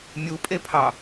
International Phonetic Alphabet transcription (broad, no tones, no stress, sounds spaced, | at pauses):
mʲ u pʼ e pʰ ɑ